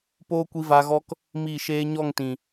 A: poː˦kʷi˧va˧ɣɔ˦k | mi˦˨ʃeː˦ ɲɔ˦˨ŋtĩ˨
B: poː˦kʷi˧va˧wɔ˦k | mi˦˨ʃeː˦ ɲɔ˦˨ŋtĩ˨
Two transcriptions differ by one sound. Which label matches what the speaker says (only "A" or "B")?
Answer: A